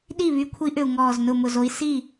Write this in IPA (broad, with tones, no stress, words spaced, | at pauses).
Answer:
ɗi˥˩βy˨˦ kʷʰi˨˦ʔʏ˨˩u̯ ŋɔː˨˩z nʊ˨˩ mʊ˨˩zo˨˦i̯ si˥˩